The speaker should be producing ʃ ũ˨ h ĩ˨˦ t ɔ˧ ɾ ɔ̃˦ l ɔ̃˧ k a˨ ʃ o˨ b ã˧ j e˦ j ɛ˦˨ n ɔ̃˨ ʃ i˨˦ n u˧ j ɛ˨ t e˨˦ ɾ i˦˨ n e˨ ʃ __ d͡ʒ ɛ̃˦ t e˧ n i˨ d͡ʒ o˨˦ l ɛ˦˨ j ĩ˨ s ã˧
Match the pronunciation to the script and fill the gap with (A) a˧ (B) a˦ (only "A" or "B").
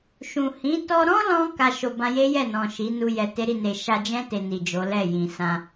A